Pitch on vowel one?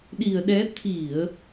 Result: low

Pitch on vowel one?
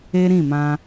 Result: high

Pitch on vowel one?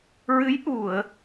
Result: rising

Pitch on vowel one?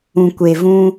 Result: low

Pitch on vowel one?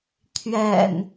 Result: low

